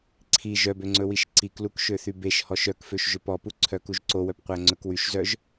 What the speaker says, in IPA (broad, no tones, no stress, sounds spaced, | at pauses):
ǀʰ i ʒ œ b ø ŋ͡ǀ ɵ w i ʃ ǀ i k l u k ʃ ø θ y b e ʃ h ɔ ʃ œ k f ø ʃ ʒ ø p ɔ p u ǀʰ œ k u ʒ ǀ o w œ p qʷ æ ŋ͡ǀ ɵ k w y ʃ z œ ʒ